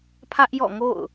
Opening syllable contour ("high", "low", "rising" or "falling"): high